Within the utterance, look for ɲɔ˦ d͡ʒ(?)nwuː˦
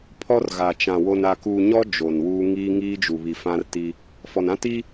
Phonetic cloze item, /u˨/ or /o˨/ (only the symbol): o˨